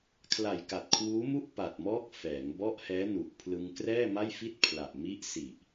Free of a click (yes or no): yes